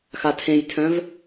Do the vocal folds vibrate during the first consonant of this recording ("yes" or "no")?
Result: no